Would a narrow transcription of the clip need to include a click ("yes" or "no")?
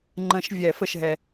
yes